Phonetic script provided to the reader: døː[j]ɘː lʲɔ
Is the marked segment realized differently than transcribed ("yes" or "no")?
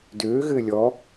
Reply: yes